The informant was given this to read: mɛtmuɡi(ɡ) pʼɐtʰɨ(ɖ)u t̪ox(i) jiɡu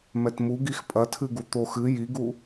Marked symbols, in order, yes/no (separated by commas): no, no, no